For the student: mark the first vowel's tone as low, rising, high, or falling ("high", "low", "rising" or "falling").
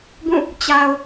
falling